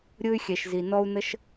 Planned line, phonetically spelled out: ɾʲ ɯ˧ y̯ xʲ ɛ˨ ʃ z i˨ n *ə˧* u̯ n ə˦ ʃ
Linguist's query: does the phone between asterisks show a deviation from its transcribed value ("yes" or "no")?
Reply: yes